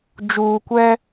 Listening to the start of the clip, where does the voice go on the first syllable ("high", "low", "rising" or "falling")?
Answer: low